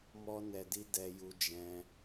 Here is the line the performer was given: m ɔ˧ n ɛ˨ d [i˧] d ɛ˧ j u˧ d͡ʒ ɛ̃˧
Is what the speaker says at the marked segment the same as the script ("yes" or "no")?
yes